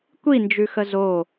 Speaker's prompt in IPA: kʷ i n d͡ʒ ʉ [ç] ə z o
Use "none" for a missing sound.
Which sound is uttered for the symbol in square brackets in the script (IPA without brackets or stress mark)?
x